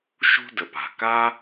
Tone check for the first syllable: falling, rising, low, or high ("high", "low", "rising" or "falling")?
high